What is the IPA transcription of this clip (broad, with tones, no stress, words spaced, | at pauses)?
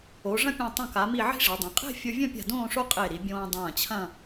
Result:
o˩˧ ʐɐ̃˥pʲẽ˧˩ tˤõ˧˩ka˩˧mi˧˩ ʕi̤˥ʐe˩˧dˤẽ˩˧ qʼe̤˥˧fʲo˧vʲɐ̃˥˧pʲa̤˧˩ dõː˥˧ʂo˥qʼe˧˩ ɾi˩˧ bʲõː˧dˤɐ̃ː˧˩t͡ɕʰɐ̃˥˧